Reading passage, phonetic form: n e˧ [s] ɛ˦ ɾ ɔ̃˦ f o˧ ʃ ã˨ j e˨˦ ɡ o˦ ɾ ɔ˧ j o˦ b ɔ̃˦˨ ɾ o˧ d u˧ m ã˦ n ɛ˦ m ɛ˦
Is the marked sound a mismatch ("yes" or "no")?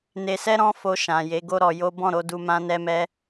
no